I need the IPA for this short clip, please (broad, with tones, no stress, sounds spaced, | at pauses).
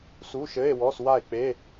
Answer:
s u˧˥˧ ʃ ɘ˧˥˧ e̯ w ɔ˧˥˧ s w a˥˨ e̯ k͡p e˧˥˧